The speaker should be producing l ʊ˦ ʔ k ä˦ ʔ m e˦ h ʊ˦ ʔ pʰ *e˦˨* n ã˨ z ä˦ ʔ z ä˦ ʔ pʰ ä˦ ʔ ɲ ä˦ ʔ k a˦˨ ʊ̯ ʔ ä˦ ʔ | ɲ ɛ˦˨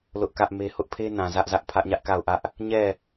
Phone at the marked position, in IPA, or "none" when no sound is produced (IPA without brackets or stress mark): e˦